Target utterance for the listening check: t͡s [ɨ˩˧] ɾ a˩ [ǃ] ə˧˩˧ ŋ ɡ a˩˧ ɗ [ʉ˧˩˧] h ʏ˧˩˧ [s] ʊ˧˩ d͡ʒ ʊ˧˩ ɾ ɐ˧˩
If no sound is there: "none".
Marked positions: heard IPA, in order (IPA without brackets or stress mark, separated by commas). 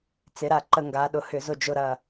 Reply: ɪ˩˧, ǃ, ʊ˧˩˧, z